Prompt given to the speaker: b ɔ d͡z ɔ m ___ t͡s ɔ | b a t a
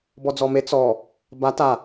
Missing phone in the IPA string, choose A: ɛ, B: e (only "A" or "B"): B